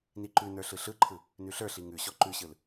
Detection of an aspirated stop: present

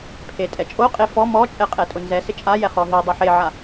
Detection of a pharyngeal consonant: present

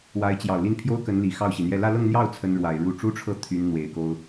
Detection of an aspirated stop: present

